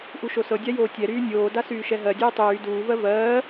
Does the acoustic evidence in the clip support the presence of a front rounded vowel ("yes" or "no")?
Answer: yes